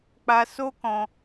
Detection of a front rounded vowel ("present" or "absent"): absent